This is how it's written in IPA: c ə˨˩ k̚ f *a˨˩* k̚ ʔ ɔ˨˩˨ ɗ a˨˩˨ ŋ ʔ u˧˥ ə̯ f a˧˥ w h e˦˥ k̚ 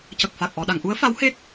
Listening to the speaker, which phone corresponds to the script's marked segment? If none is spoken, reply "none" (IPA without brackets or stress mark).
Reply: a˨˩